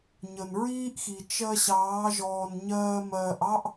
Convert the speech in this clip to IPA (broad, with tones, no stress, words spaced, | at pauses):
ɲə˨nɹiː˦ʔxi˨ t͡ʃɜ˧ɕɑː˨˦ʒɔː˨n ɲɜː˧ mɜː˨ʔɑ˦ʔ